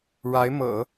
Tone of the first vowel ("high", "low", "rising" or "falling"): rising